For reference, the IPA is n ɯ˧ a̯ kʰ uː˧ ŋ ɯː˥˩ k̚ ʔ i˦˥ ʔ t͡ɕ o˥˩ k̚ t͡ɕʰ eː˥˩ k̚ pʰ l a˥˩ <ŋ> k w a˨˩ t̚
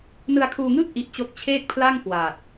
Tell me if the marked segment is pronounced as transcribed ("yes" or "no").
yes